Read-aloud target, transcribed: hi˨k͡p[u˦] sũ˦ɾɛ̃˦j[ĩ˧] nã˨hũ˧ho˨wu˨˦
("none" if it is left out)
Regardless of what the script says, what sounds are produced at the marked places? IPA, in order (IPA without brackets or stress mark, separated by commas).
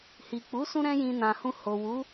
u˨˦, ĩ˧